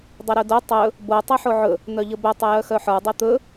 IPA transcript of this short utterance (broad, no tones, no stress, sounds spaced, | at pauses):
dˤ ɵ ɾ ɵ d o tˤ ɵ | b o tˤ œ ħ o ʕ ɵ | n̪ œ ʎ ə b œ tˤ ə j œ x œ ħ ə˞ dˤ ɛ t̪ ɵ